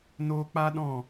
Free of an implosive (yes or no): no